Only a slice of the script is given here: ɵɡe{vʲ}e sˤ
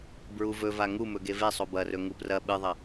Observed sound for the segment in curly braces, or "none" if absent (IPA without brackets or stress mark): v